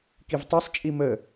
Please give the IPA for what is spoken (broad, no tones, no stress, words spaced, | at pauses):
kivtˤesˤt͡ʃʼi mə